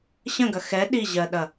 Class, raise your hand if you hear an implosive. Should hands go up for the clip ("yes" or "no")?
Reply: yes